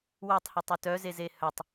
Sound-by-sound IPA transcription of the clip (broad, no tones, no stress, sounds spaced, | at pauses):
w œ tˤ h ø tˤ u t œ z e z e h œ tˤ